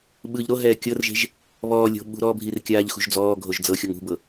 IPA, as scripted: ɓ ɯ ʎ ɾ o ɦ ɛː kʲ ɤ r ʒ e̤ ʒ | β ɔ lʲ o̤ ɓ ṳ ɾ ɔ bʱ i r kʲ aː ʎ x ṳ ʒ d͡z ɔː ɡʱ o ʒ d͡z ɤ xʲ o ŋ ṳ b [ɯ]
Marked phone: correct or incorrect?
incorrect